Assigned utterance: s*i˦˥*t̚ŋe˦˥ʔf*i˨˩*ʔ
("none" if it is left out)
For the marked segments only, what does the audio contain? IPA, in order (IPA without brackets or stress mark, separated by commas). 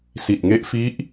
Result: i˨˩, i˦˥